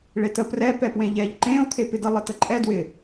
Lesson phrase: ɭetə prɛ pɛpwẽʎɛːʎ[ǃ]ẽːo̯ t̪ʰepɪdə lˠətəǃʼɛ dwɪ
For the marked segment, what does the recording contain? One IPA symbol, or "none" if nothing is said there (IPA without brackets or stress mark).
ǃ